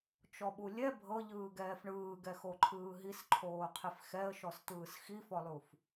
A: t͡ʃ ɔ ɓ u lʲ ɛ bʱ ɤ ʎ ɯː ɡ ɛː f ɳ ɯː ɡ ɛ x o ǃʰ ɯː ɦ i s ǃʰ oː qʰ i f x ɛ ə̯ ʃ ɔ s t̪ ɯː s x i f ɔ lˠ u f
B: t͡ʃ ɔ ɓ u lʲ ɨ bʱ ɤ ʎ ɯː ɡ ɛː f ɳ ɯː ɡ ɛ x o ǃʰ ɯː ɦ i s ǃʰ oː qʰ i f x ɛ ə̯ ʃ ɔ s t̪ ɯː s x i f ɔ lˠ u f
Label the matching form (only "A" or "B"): A